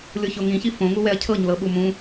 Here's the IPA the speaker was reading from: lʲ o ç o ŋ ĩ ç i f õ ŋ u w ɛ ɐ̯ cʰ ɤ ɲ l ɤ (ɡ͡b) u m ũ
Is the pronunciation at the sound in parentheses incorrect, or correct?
incorrect: ɓ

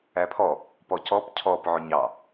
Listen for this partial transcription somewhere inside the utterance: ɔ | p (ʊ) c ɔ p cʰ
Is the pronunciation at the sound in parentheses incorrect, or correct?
incorrect: ɔ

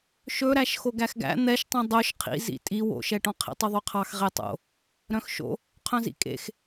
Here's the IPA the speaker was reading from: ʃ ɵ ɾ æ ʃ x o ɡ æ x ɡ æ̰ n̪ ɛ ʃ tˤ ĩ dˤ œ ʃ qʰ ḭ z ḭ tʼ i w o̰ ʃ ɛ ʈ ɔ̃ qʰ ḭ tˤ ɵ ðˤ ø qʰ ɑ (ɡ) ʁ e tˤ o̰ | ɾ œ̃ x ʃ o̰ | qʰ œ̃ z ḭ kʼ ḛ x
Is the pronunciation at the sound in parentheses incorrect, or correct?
incorrect: x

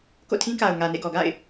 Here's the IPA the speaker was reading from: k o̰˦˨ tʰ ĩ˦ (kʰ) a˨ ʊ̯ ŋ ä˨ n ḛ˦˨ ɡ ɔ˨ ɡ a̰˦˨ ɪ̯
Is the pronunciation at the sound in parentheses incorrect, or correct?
incorrect: k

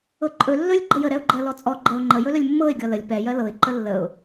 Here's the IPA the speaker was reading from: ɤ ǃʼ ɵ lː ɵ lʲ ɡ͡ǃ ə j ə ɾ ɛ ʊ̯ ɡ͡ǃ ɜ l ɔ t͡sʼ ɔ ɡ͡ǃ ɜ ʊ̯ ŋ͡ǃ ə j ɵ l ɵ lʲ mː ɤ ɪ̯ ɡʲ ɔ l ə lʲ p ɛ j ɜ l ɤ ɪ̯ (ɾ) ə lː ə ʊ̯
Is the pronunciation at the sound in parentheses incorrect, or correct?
incorrect: ǃ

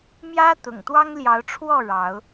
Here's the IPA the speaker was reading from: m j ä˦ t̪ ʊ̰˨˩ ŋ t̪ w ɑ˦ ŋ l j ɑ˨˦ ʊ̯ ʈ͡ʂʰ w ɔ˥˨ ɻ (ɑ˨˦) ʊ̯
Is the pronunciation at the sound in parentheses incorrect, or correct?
correct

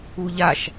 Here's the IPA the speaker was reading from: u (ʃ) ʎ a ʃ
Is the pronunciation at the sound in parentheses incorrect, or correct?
incorrect: none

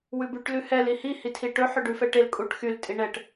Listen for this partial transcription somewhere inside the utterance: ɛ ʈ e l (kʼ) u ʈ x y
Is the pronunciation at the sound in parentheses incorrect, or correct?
correct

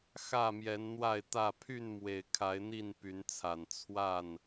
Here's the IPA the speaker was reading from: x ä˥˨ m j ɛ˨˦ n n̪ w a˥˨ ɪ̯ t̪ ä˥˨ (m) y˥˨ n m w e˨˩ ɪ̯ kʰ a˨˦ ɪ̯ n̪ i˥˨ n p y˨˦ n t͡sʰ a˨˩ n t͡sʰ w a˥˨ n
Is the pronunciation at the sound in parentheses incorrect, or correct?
incorrect: pʰ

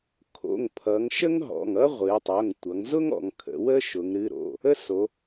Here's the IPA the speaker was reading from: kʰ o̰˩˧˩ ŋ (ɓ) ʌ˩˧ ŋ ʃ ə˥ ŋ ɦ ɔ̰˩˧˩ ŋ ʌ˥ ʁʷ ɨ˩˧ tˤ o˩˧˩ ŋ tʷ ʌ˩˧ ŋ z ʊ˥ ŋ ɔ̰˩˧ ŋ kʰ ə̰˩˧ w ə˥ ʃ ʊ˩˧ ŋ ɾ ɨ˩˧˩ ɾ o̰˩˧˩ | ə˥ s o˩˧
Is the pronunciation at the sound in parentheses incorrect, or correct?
incorrect: pʰ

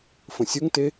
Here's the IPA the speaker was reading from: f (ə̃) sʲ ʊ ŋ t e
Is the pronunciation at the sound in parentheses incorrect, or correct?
correct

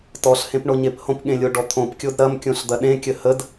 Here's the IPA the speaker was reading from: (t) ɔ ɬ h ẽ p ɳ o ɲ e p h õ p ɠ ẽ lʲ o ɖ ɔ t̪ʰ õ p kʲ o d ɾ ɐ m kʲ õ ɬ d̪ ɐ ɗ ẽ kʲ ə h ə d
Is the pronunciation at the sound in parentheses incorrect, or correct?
correct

